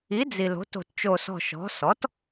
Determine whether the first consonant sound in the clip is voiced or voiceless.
voiced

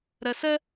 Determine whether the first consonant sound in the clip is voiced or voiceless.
voiced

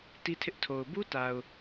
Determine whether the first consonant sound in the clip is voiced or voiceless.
voiceless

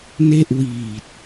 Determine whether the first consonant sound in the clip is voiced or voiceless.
voiced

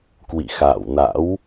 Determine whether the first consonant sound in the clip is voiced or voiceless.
voiceless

